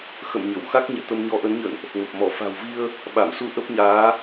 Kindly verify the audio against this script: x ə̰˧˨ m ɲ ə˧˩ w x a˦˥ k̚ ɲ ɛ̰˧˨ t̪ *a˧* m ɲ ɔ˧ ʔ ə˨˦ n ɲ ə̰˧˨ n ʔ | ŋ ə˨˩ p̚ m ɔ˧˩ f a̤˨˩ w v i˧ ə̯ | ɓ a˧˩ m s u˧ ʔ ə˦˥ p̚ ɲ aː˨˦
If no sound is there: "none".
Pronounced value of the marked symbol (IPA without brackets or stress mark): ə˧